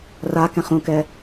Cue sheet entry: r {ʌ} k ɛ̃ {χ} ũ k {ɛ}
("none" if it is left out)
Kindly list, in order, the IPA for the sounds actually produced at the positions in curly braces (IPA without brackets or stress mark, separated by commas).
a, χ, ɛ